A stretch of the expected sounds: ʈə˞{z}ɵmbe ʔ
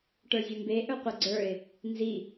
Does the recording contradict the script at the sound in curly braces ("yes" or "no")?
yes